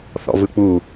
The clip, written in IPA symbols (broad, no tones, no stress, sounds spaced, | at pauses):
θ ɔ̰ v ɯ k͡p u